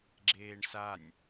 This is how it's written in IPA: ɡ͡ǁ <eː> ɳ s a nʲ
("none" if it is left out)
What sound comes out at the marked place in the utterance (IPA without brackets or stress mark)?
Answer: eː